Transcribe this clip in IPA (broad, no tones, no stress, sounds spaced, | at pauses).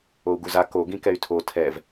o u̯ ɡ u z a k o ɡ ĩ k ɛ y̯ tʰ o tʰ ɛ v